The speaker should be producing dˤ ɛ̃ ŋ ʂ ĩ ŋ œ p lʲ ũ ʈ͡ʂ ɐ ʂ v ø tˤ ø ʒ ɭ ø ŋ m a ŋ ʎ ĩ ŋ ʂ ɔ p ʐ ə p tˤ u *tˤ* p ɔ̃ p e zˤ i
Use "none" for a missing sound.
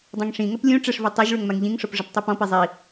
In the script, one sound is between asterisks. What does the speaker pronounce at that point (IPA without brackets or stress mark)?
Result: none